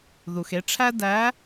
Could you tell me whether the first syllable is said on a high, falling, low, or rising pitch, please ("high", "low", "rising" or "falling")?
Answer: low